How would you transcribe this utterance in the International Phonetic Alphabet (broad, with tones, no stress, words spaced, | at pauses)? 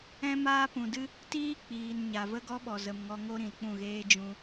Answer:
ɛ̃˦maː˦pũ˨dɨ˦ | tiː˦ k͡piː˨nɲa˨ və˦ɡɔ˦ɓɔ˨ zə˨m ŋɔ˧ŋo˦ɾĩ˨lk͡pũ˦˨ ɣeː˦d͡ʒũ˧